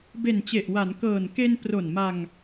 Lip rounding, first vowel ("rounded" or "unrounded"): unrounded